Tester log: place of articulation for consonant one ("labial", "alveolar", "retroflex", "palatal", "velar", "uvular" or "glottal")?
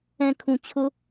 velar